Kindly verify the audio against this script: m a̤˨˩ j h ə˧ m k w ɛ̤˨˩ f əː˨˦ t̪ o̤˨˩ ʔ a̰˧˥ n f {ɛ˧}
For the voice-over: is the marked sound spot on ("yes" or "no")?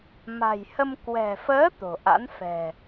no